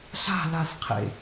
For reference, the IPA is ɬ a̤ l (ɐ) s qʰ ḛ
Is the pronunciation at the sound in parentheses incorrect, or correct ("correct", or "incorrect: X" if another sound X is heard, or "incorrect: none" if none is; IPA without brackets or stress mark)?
incorrect: a